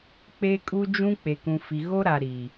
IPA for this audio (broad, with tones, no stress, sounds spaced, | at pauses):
k͡p e˦ kʼ u˦ d͡ʒ ũ˦ k͡p e˨ k ũ˨ f i˨ ɣ o˦ ɾ a˨ ɾ i˨